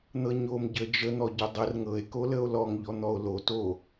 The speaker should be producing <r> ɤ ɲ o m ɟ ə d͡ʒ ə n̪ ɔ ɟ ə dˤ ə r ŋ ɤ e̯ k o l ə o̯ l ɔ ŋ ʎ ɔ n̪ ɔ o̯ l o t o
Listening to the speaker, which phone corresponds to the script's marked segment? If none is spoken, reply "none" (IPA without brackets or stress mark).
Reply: n̪